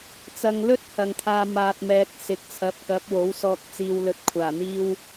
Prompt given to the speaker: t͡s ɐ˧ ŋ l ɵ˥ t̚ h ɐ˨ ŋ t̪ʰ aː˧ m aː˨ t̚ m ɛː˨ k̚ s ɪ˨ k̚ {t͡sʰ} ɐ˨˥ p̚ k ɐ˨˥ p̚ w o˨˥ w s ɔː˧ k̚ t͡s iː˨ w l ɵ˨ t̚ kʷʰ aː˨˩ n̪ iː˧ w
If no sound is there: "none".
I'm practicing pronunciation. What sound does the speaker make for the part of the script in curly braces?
t͡sʰ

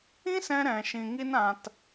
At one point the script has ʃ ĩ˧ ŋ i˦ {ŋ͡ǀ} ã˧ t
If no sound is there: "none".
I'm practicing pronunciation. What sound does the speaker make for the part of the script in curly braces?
n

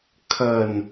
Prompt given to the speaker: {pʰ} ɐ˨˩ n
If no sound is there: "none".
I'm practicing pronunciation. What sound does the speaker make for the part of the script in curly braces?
kʰ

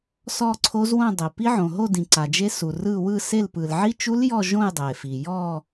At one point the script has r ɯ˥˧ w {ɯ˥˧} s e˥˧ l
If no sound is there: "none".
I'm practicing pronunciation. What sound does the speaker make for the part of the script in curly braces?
ɯ˥˧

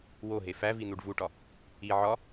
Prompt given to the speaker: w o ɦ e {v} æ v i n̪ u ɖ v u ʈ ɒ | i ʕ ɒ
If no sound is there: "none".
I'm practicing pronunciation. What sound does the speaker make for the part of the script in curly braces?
f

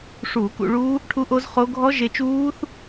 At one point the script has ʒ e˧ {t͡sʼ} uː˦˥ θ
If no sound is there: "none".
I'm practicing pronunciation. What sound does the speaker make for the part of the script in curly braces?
t͡ʃ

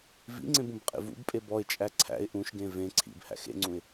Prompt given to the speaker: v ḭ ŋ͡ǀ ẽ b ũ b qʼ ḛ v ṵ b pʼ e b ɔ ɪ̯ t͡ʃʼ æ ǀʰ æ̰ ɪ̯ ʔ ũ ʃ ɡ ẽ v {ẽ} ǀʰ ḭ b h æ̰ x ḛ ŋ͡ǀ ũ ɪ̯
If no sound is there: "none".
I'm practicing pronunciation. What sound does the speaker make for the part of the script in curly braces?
ẽ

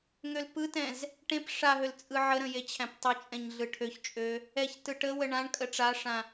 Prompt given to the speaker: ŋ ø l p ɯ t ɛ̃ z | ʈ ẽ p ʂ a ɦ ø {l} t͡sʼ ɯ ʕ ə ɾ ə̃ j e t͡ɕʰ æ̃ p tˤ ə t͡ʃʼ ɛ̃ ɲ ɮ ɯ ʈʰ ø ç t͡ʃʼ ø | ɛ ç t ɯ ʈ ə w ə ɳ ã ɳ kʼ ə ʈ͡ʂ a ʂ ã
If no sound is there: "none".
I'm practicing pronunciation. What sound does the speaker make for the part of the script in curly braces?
l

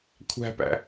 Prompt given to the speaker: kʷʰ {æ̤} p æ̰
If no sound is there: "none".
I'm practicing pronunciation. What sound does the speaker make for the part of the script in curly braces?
æ̤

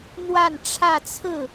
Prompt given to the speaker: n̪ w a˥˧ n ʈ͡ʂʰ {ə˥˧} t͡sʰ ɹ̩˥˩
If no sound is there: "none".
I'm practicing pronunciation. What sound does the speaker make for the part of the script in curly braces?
ä˥˧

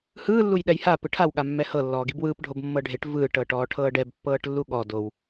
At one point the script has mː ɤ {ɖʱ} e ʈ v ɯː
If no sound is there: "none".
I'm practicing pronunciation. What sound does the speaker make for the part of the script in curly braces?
ɖʱ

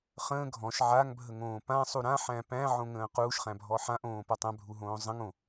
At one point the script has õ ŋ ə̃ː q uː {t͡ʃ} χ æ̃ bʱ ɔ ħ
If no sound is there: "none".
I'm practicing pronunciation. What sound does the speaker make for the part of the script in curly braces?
ʃ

